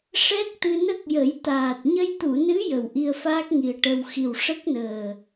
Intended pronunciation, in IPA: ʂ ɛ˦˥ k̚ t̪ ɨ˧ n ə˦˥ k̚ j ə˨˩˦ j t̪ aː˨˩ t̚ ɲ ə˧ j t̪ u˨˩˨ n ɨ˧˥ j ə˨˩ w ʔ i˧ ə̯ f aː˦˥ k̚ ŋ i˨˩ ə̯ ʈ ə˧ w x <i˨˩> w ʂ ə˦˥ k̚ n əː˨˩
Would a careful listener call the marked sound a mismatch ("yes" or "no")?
no